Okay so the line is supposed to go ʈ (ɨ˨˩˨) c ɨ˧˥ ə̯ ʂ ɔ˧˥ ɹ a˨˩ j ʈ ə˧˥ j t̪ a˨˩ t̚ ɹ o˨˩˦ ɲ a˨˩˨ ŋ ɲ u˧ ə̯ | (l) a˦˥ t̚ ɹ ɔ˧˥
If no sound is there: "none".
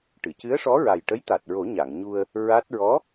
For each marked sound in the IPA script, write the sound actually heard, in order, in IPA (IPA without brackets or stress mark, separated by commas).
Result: ɨ˨˩˨, ɹ